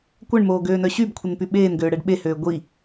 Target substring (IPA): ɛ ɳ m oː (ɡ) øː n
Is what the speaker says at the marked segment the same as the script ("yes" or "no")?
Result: yes